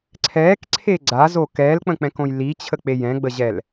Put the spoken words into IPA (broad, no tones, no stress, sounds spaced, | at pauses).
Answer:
ǀʰ ɛː k ǀʰ e ɡ͡ǀ a z o k ɛː l k͡p ə̃ k͡p ɛ̃ k õ j l i t͡ɕʰ ə k͡p e j ɛ̃ ɡ͡b ə ʑ ɛ l